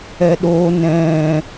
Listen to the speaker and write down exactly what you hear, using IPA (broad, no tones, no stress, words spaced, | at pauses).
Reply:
ɛɗo nɛ̃